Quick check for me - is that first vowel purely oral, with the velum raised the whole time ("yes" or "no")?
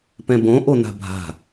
no